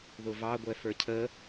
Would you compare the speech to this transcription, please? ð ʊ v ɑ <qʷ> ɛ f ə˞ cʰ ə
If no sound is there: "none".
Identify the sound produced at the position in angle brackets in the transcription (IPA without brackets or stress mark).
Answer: ɡʷ